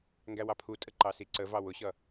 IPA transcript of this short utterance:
ŋ ɡ æ w ɑ pʰ u tʼ ə ǃ ɑ s i ǀ ə v ɑ w ʊ ɕ ʌ

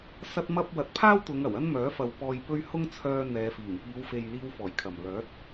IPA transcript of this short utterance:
s ɐ˥ t̚ m ɐ˥ p̚ w ɐ˨ t̚ pʰ aː˥ w t̪ ʊ˨˧ ŋ ɐ˨˩ w ɐ˥ n m œː˨˥ f ɐ˨ w p ɔː˨ j p ɵ˧ ɥ h ʊ˥ ŋ t͡sʰ œː˧ n̪ ɛː˨˧ f iː˨˩ ŋ p iː˨˧ w f e˨ j l iː˧ w f ɔː˨˩ j kʰ ɐ˨˩ m l œː˨˥ t̚

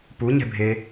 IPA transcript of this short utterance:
p u ɲ ɛ̤ bʱ e

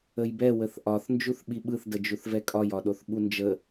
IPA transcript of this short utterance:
ə j b ɛ w ə θ ʔ ɒ θ n d͡ʒ u θ ɓ i ɓ ɯ θ d ə d͡ʒ u θ v ɛ kʼ ɒ j ɒ ɗ o θ ɓ u n d͡ʒ ə

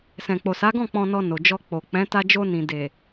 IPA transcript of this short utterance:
s ɛ̃˨ k͡p o˨ s a˨˦ ɡ ɔ̃˦˨ k͡p ɔ̃˧ n ɔ˧ n o˨ d͡ʒ ɔ˧ k͡p o˨ k͡p ɛ̃˨˦ t a˧ d͡ʒ o˧ n ĩ˨ d e˨

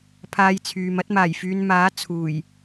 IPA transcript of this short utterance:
pʰ aː˧ j t͡sʰ yː˨ m ɐ˥ t̚ m aː˨˩ j f yː˨˧ n m aː˨˥ t͡sʰ uː˨˩ j

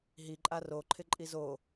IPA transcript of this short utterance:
ɦ i ǃʼ a r o ǃʰ ɪ ǃʼ i z o

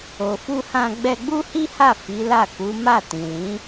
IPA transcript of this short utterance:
o˨ f u˧ h ã˧ ɡ͡b ɛ˧ ɡ͡b u˦ h i˦ h a˦˨ f i˨˦ l a˦˨ k u˨˦ m a˦˨ t ĩ˨ l ĩ˨˦

